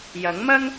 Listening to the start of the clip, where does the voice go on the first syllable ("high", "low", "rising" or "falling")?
rising